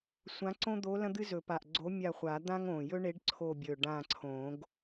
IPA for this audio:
sʷ ã˧˥ ǀ õ˥ d̪ o˧˥ l ɐ̃˥ d̪ ɨ˥ z ɵ˨˩˦ p a˨˩ ʔ ɡ͡ǀ o˧˥ mʲ a˦˨ χʷ a˨˩˦ d̪ ã˥ ŋ õ˨˩ j ɵ˥ ɳ e˧˥ ɖ ǀʰ o˦˨ bʲ ɵ˨˩ ɖ ã˦˨ ǀʰ õ˨˩˦ ɡ

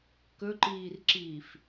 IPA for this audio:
k ɵ ǃ iː r ǁ iː f

